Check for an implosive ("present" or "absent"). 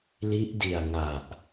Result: absent